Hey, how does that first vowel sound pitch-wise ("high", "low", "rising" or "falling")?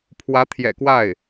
rising